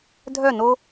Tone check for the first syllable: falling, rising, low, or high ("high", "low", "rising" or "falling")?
falling